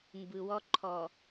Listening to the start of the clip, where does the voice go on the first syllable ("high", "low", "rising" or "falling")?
low